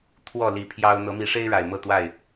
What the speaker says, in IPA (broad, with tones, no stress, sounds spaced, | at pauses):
t̪ʰ w ɔ˥˨ l i˨˦ pʰ j ɑ˦ ʊ̯ n̪ ɤ˨˦ m i˨˦ ʂ e˦ ɪ̯ ɻ a˨˩ ɪ̯ m ɤ˥˨ t̪ w a˥˨ ɪ̯